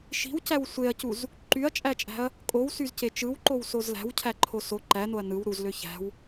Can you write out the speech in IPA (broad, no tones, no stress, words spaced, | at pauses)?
ʃi̤wcæw sʷeɐ̯cuz | ǃyɐ̯t͡ʃʼæt͡ʃʼæ̤ɐ̯ | kʼowsyzce t͡ʃɯwǃowsoz læ̤wcʰæǃʰo so ǃænoɐ̯ nɯw ɾuzlø çæ̤w